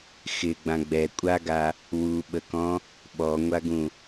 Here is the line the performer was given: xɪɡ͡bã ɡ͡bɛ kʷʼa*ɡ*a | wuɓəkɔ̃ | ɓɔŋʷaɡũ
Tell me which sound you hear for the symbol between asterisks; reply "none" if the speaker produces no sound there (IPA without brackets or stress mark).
ɡ